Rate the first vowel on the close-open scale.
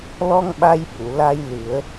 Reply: mid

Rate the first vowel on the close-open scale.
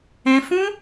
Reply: mid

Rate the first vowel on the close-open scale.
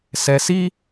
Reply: mid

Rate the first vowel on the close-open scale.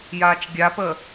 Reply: open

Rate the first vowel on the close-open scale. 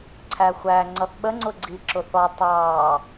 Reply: open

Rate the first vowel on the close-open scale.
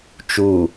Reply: close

